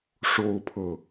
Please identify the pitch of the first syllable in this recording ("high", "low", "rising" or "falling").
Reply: high